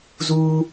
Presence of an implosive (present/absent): absent